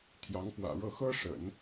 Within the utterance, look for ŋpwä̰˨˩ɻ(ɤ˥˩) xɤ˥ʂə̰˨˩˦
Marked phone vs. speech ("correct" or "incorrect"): correct